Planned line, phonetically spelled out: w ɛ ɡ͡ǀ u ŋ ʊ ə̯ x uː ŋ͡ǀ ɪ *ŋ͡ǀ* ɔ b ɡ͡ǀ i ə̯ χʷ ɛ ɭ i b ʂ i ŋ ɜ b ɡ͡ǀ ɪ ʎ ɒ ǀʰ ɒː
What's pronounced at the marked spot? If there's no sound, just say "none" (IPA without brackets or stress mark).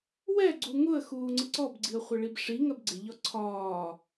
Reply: ǀ